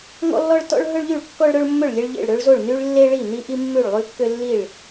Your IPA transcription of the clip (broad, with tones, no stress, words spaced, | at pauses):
ŋɔ̰˥lːɔ˥ɭ tɔ̰˥ɭ ɦɵ˥ɭʎy˥˩ɭ kːɔ˥ɭɾɵ˥ɭmːɵ˥˩ɭ lʲe˥ɭʎḛ˥˩ɭ ɾø˥ɭzo˥˩ɭny˥ɭ lːe˥ɭi˥˩ ni˥ʔi˥ mːʉ˥˩ɭlˠʉ˥kːø˥ lːi˥˩ɭ